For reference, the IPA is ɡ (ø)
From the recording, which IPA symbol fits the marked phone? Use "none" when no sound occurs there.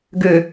ø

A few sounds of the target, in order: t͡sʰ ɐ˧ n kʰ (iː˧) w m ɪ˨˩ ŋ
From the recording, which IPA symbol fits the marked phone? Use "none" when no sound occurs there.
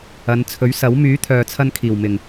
iː˨˩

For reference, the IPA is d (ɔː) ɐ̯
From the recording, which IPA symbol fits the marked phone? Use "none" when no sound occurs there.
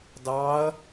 ɑː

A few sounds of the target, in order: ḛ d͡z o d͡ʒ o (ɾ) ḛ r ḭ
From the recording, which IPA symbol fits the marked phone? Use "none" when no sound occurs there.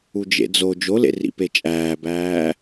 l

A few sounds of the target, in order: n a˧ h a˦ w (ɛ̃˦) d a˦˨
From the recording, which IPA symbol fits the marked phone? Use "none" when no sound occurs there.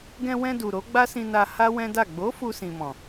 ɛ̃˦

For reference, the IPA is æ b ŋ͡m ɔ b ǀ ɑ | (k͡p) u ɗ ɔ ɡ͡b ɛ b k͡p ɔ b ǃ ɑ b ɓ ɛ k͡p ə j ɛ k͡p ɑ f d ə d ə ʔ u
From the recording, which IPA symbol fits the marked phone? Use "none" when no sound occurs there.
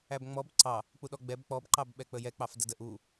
k͡p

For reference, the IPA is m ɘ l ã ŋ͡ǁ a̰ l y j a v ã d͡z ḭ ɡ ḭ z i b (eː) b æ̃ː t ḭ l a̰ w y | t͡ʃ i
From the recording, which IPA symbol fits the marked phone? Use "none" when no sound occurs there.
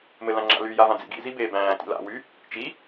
eː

